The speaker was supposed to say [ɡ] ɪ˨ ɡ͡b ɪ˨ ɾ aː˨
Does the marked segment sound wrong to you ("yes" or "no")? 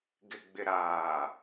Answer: no